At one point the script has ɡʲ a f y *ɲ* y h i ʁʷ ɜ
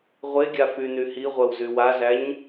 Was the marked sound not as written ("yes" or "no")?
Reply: yes